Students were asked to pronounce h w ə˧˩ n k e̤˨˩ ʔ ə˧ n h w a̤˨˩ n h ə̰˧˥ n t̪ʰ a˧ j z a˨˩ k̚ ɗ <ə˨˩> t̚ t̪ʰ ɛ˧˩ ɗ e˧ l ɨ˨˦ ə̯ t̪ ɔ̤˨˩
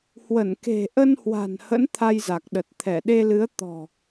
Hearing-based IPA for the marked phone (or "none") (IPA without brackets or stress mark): ə˨˩